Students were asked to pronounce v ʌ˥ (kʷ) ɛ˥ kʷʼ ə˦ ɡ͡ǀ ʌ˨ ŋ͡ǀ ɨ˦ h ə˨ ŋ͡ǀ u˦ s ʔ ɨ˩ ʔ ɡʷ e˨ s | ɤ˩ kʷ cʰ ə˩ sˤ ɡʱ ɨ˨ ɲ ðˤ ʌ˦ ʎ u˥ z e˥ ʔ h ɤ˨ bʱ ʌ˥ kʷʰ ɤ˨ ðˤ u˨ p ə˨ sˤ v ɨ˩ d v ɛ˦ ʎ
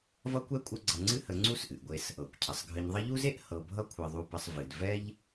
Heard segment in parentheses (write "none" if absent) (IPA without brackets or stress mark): kʷ